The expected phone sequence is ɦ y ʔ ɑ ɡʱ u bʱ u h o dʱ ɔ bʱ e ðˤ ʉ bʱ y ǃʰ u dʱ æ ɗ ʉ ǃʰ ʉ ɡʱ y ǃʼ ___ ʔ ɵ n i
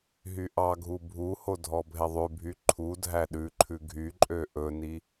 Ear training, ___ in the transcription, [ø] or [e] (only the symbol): ø